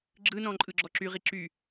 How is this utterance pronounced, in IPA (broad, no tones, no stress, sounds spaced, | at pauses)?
ɡ͡ǁ ɯ n ɔ̃ ǃʼ ɯ ɡ͡ǁ ɔ ǁ y ʁ i ǁ y